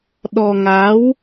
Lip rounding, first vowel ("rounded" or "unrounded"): rounded